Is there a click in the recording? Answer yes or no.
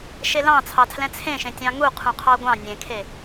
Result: no